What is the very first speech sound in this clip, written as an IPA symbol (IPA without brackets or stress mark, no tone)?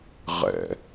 ʁ